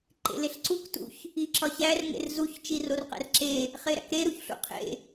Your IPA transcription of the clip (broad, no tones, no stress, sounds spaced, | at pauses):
ǃ ḛ l e ɬ ǀ u k t ṵ ç | i ǁ ɒ ç æ r ŋ ḛ r z u ç t͡ʃ i r o r q æ̰ r ǁ e | χ e ɾ æ̰ k ɾ e ɾ u ç ɬ ṵ qʰ ḛ